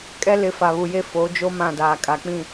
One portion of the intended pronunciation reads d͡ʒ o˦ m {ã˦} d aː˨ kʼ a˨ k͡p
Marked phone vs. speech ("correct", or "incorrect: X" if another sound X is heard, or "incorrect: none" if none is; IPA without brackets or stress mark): incorrect: ã˦˨